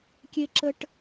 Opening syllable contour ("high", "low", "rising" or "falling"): high